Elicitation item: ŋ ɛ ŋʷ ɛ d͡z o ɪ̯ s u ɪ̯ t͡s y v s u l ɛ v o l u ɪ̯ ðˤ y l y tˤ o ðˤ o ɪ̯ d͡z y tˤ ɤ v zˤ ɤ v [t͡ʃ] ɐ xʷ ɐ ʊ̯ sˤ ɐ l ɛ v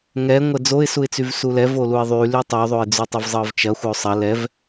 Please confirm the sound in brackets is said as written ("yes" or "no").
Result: yes